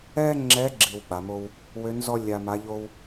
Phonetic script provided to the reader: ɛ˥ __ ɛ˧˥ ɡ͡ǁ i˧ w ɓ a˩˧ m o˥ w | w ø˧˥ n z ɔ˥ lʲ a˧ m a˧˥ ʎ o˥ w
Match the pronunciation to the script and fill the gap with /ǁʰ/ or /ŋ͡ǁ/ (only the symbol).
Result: ŋ͡ǁ